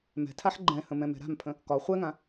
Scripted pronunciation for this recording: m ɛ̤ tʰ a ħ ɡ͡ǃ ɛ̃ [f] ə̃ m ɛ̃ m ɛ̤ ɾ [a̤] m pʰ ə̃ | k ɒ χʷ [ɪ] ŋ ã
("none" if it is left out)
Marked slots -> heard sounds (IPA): h, a̤, ɛ

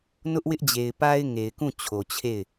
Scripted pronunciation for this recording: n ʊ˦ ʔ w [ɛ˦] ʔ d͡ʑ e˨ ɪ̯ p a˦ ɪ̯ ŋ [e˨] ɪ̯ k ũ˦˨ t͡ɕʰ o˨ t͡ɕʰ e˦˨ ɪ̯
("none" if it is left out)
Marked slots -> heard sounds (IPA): ɪ˦, e˨

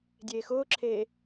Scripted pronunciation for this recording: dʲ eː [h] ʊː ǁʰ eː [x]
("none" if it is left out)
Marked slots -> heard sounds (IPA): x, none

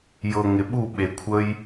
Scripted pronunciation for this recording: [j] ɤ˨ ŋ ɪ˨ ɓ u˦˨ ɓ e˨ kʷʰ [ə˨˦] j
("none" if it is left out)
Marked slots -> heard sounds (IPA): j, ə˦

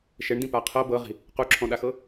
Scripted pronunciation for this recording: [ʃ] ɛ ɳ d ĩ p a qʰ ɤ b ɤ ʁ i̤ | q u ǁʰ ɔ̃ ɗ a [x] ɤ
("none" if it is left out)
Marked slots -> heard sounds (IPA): ʃ, x

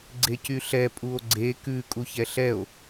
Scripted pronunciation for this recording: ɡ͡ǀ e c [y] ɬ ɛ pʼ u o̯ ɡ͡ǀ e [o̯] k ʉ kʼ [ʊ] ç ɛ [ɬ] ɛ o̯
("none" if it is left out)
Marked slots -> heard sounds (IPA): y, none, u, ɬ

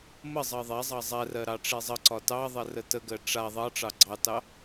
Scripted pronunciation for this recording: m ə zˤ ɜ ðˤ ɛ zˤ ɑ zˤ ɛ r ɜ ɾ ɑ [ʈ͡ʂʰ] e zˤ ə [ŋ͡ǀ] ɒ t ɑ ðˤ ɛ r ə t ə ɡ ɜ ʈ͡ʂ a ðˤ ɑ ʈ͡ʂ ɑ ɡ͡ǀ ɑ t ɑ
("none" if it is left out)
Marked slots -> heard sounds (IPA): ʈ͡ʂ, ǀ

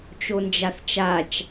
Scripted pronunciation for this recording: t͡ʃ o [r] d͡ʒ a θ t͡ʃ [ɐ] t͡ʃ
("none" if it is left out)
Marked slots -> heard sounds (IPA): n, a

